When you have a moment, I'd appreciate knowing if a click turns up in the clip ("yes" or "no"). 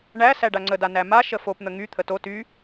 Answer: yes